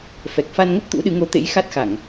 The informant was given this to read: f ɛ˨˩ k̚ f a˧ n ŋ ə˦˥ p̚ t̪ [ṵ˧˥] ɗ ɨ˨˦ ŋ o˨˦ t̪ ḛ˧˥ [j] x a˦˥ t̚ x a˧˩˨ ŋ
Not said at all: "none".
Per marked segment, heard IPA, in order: ṵ˧˥, j

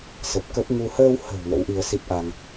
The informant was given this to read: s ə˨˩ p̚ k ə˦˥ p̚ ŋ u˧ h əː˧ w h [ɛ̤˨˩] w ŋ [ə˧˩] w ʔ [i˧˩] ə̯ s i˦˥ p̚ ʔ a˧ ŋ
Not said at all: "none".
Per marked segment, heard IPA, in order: ə̤˨˩, ə̰˧˥, i˧

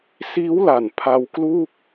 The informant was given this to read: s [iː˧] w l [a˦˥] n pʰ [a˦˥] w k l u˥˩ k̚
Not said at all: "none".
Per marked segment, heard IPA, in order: iː˦˥, a˨˩, a˧

